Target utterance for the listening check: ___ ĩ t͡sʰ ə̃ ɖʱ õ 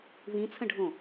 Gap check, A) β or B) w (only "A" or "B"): A